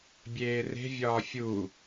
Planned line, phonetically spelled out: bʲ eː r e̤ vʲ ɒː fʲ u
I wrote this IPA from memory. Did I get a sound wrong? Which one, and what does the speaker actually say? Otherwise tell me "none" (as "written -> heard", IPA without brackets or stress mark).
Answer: none